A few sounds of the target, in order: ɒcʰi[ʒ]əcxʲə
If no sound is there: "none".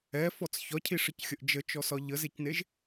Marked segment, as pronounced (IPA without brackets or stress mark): ʂ